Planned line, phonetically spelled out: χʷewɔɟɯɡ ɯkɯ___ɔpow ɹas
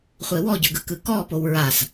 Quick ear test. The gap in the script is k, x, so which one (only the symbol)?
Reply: k